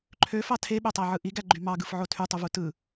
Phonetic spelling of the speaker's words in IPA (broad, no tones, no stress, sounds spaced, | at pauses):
ǃʰ ø f ɑ tʰ e ɓ ø tˤ æ ʕ ɯ ʔ i ɡ æ ɡ͡ǃ y m ɑ ɡ ɯ f ʕ o tʰ y tˤ u v u t ɯ